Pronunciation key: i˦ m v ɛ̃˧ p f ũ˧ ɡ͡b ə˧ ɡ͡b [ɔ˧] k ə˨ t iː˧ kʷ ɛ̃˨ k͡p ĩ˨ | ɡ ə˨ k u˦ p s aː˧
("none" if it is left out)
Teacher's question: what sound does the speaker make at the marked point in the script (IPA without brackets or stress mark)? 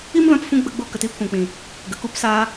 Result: o˧